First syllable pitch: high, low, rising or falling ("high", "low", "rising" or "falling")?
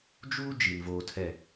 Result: high